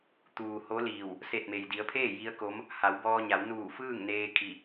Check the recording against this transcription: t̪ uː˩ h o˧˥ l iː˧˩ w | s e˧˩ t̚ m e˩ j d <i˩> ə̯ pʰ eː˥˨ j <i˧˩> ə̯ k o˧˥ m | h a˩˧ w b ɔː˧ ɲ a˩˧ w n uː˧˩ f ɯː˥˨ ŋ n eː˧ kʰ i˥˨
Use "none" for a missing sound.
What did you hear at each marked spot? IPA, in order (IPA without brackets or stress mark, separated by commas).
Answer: i˩˧, i˧˥